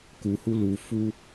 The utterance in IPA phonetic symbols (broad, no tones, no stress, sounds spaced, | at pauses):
k u h u l u f u